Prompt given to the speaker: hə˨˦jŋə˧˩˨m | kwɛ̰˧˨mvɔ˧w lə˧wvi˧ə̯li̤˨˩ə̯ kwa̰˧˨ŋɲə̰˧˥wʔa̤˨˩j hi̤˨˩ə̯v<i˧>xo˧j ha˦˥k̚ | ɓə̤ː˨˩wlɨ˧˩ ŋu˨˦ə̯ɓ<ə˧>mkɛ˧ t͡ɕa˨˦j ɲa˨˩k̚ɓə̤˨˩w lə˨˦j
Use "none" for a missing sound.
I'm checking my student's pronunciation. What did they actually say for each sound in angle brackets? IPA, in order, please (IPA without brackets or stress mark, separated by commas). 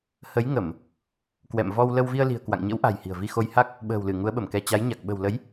i˧, ə˧˩